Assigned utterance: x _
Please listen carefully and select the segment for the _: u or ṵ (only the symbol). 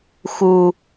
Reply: u